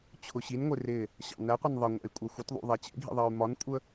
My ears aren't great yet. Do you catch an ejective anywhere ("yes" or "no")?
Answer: yes